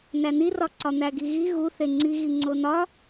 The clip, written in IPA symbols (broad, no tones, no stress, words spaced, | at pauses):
nænirɒ ǀɒn̪æɡiɣi ɣu θeŋ͡ǀiɣi ŋ͡ǀonɒ